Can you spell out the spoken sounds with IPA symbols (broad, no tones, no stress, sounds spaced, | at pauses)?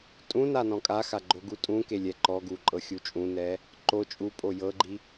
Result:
tʼ ũ n a n ɔ̃ kʼ a x a ɡ͡ǃ o ɡ u tʼ ũ k e lʲ ɛ ǃ ɔ ɡ u ǃʼ ɤ xʲ u t͡ʃʼ ũ n ɛ | ǃ o t͡ʃʼ u pʼ o j ɤ ɡ͡ǃ i